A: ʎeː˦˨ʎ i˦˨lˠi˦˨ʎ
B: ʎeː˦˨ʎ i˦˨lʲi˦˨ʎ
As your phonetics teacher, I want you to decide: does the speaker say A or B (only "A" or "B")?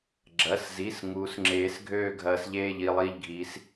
A